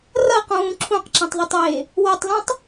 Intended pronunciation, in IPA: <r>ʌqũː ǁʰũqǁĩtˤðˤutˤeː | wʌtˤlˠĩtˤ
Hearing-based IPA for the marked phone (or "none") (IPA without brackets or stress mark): r